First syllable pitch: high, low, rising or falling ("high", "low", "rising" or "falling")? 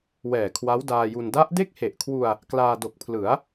low